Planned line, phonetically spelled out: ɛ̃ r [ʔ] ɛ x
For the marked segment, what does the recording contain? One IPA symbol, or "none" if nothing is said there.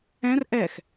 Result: ʔ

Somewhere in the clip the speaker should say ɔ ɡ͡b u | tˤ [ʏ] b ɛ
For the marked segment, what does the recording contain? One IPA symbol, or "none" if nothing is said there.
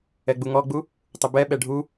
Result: ʏ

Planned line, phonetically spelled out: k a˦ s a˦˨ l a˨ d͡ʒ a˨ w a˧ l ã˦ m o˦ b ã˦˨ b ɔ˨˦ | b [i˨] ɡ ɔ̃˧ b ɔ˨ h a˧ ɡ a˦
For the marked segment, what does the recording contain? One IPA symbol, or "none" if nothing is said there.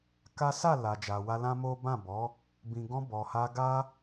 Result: ĩ˨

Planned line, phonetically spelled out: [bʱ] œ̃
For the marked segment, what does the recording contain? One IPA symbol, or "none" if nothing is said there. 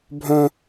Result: bʱ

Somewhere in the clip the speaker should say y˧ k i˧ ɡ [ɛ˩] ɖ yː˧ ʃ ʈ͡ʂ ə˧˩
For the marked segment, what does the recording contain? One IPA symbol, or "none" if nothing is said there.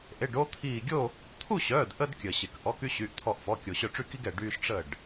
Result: ɛ˩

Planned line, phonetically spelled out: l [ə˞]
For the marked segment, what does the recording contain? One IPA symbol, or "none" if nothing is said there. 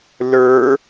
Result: ə˞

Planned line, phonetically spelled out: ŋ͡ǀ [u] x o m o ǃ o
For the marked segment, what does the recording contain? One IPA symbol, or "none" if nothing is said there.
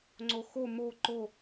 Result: o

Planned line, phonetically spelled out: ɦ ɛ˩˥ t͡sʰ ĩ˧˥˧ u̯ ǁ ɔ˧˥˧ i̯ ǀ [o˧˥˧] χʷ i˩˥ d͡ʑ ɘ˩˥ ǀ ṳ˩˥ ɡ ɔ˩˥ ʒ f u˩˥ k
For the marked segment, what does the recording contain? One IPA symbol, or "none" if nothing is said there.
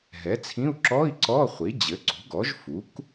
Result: ɔ˧˥˧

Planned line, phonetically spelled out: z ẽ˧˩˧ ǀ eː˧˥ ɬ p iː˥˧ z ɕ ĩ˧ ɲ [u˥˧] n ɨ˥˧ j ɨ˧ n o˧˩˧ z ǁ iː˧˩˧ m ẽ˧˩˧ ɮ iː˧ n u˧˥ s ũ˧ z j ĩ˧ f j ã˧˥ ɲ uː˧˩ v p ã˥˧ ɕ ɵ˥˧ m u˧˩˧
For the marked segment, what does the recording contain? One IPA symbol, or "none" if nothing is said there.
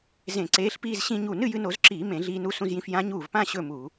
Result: u˧˩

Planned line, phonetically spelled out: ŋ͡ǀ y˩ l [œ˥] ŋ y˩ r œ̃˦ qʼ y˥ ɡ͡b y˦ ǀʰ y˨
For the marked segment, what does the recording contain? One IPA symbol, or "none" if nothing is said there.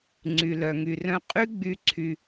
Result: œ˩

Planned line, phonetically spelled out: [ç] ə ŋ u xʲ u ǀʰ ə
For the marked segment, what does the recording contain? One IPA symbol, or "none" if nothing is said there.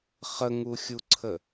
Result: χ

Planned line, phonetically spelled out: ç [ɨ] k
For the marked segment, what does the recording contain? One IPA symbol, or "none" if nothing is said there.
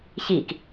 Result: i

